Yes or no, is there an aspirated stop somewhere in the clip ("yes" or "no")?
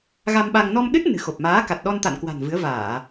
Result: no